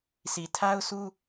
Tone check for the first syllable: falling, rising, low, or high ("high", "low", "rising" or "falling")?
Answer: low